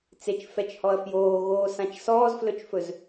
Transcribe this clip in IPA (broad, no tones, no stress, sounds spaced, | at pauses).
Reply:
t͡s e t͡ʃ f ɛ t͡ʃ h ɔ ɐ̯ f j oː ɣ oː s ã t͡ʃ s ɔː z f l ɵ t͡ʃ f ɵ z